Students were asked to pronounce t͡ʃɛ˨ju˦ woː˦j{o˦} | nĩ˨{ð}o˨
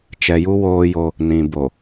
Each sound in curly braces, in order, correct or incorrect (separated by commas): correct, incorrect